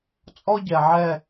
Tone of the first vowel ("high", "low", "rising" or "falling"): high